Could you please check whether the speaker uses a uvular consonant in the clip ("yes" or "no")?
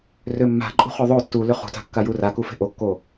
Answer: yes